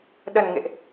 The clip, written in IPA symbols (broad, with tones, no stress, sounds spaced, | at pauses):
ɗ ə˨˩ n ŋ ḛ˧˨ ʔ